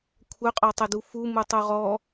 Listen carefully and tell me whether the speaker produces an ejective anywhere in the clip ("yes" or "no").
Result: yes